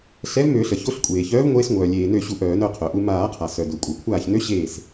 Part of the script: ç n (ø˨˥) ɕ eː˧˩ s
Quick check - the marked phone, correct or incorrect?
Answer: correct